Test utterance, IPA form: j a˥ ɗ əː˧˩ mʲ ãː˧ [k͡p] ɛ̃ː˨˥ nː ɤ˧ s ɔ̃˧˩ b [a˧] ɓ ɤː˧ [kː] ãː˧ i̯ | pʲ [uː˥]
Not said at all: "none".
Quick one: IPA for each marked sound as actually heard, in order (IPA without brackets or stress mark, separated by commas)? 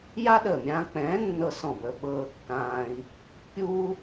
k͡p, ə˧, kː, uː˥